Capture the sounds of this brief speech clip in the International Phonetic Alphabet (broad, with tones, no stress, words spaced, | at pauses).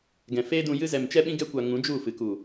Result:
ɡɛ̃˨feː˦dũ˧jɨ˦ zɛ˨mt͡ʃɛ˧ɓĩ˧ ɡɛ˧kʷa˨ ŋũ˨˦d͡ʒu˦˨fɨ˨ ku˨